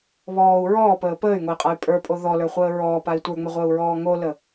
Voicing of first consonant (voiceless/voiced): voiced